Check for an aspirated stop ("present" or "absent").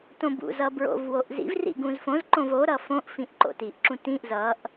absent